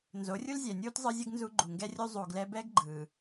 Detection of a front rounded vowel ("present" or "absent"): absent